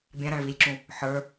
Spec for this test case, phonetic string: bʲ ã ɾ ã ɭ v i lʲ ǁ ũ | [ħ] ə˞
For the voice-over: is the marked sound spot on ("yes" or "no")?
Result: yes